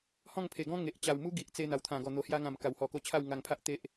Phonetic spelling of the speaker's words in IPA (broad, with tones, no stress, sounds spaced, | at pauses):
h ɔ̃˥˧ ŋ pʰ e˨˩ ɡ ɔ̃˦ ŋ e˨ ʔ t͡ɕ a˨˩ w m u˦ ɡ i˨ ʔ t͡s e˧ n̪ a˨˩ w t̪ʰ ã˨˩ ɡ ɔ˨˩ n̪ o˨˩ h j a˧ ŋ ã˨˩ m k a˨˩ w h ɔ˨˩ k o˧ t͡ɕʰ a˥˧ w ŋ a˧ ŋ pʰ a˦ ʔ t̪ e˦ ʔ